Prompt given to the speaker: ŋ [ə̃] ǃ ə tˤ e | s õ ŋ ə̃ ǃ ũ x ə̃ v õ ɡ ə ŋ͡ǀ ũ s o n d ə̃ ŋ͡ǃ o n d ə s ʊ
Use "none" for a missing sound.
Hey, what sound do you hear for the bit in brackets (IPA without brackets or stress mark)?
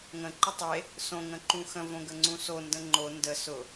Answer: ə̃